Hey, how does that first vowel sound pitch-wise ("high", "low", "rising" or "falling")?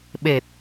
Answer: low